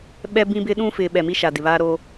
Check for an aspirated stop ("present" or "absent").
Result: absent